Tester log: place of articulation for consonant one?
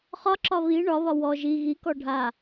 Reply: uvular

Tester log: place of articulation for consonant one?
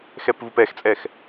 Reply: velar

